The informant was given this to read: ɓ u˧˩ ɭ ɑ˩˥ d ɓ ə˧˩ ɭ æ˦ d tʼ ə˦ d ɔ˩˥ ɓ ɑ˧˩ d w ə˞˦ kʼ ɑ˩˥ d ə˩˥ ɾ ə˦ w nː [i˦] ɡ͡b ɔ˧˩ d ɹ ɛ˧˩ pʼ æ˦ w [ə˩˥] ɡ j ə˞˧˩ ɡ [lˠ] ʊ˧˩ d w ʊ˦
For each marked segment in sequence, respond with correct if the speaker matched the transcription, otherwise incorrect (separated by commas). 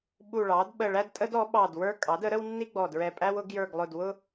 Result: correct, incorrect, correct